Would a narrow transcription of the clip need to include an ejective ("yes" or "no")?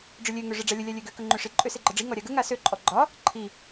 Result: yes